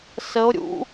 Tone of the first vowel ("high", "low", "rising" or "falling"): rising